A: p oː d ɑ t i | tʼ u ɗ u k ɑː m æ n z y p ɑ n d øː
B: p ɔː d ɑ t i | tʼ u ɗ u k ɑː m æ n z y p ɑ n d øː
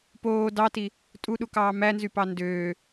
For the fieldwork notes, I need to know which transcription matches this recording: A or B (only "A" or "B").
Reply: A